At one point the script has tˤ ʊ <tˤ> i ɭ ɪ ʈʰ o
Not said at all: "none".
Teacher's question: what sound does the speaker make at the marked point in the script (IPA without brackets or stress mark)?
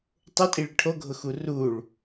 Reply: tʼ